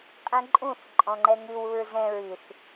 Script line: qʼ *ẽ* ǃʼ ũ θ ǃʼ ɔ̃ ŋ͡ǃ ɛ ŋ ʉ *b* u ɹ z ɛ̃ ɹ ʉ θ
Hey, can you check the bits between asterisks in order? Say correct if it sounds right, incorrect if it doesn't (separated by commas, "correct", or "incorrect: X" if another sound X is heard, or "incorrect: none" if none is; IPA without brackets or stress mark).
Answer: incorrect: ɛ̃, incorrect: w